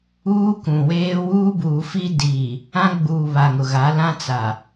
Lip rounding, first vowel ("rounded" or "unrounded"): rounded